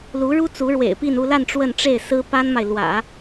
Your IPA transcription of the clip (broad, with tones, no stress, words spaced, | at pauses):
lu˧˥ɻu˥ t͡su˧˥ɻwḛ˨˩ɪ̯pi˥˧n u˥˧la˥˧n ʈ͡ʂwə˥˧nʈ͡ʂe˥˩ɪ̯ sɹ̩˥ pa˥nma˨ɪ̯ lwä̰˨˩˦